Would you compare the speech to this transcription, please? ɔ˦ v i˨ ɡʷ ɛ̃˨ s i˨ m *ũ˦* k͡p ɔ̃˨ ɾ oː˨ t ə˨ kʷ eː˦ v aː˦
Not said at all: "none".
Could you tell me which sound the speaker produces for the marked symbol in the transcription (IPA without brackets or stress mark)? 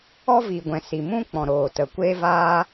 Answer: ũ˦